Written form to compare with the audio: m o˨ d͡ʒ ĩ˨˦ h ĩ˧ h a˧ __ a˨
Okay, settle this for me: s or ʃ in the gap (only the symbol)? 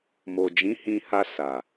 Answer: s